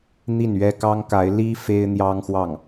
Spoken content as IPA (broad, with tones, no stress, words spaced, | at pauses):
n̪i˥˩nɥɛ˥kɑ˥ŋka˧˥ɪ̯ li˥ fe˥ɪ̯n̪jɑ˥ŋxwɑ˥˩ŋ